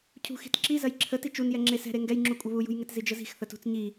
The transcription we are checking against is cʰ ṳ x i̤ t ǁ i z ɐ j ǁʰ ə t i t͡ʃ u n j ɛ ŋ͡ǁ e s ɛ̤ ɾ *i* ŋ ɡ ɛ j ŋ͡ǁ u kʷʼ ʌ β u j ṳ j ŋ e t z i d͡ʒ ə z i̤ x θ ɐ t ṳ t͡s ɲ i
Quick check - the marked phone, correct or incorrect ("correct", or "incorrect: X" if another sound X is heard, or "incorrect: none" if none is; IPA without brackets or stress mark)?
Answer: incorrect: e